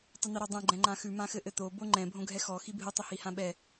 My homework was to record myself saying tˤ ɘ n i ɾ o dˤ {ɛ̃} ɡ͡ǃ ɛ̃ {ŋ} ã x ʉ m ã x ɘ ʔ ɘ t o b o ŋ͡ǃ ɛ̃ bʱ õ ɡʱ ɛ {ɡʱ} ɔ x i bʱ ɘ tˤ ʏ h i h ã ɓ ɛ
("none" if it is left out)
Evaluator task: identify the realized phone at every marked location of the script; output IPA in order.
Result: ɛ̃, ŋ͡ǃ, x

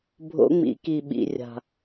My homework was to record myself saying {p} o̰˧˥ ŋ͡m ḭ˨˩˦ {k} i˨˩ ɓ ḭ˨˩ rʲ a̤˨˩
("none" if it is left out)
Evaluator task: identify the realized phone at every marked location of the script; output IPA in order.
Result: bʱ, k

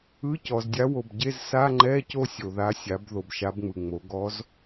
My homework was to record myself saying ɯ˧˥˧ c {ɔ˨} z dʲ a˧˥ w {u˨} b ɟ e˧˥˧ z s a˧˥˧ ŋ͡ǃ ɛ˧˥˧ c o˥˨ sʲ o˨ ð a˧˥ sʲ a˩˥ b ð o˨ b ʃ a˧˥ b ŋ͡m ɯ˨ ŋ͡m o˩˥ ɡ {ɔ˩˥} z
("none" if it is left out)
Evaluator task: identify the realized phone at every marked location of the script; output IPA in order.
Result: ɔ˨, o˨, ɔ˧˥

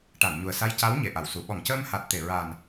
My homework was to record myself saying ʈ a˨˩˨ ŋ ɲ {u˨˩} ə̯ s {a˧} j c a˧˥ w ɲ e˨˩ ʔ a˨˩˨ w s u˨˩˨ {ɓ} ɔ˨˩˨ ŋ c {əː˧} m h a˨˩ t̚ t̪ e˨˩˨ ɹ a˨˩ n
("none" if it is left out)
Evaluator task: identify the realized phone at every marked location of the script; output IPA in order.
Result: u˨˩, a˧, ɓ, əː˧

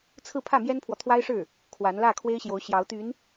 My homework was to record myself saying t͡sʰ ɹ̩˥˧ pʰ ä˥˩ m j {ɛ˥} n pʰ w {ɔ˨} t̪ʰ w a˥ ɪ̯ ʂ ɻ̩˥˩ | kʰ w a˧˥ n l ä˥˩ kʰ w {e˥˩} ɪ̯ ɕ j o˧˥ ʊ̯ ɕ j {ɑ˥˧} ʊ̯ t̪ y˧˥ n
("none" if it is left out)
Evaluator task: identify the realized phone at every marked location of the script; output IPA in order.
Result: ɛ˥, ɔ˨, e˥, ɑ˧˥

